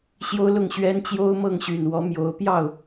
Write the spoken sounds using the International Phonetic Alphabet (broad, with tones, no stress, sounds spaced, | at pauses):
ɕ j o˥ ʊ̯ l ʊ˥˩ ŋ ɕ ɥ ɛ˥ n t͡ɕ j o˥ ʊ̯ m ɤ˥˩ ŋ ɕ y˨˩ n w ɔ˧˥ m j o˧˥ ʊ̯ p j ɑ˥˩ ʊ̯